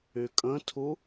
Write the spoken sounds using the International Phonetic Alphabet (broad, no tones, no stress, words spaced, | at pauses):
ykʼə̃tʰu